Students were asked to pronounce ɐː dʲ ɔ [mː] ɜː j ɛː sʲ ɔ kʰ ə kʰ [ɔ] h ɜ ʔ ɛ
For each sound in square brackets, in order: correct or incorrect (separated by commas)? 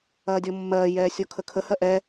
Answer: correct, incorrect